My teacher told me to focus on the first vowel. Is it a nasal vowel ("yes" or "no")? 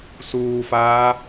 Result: no